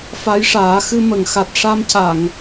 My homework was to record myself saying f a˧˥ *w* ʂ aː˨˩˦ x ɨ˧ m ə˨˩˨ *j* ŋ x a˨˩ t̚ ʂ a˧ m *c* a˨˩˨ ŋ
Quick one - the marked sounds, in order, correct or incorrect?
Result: incorrect, incorrect, correct

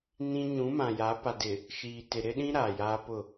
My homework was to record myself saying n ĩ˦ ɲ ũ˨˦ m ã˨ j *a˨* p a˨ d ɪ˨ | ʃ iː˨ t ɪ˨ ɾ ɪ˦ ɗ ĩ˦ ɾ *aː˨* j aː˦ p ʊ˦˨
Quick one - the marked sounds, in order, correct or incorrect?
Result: incorrect, correct

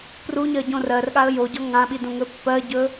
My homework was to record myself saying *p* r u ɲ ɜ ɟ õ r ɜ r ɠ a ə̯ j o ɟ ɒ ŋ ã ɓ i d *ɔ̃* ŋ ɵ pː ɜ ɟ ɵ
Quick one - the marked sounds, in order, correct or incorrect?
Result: correct, incorrect

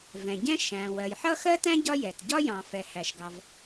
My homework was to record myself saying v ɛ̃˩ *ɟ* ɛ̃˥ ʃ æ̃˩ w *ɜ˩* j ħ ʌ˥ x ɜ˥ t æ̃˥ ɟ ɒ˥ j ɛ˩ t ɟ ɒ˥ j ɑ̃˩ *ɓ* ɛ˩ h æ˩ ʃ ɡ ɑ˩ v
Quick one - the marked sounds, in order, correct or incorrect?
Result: correct, correct, incorrect

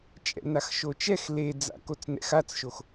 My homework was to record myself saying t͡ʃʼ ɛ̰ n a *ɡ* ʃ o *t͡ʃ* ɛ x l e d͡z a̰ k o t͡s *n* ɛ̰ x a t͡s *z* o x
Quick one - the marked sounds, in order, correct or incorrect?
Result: incorrect, correct, correct, incorrect

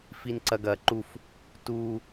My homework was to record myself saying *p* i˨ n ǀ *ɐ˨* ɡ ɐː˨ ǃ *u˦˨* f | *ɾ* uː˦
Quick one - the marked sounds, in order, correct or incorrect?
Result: incorrect, correct, correct, incorrect

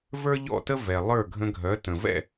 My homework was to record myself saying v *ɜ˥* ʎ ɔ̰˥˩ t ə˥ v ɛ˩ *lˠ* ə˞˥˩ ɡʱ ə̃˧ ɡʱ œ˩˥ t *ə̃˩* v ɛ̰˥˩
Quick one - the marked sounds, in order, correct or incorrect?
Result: incorrect, correct, correct

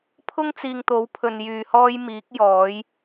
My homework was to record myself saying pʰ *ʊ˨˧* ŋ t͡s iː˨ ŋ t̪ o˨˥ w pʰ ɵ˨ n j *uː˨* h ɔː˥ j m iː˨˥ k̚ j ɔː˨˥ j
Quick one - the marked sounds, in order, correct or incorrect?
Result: incorrect, incorrect

